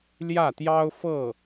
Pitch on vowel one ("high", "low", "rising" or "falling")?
falling